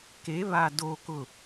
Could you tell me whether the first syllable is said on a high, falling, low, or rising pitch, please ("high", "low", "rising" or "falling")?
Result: rising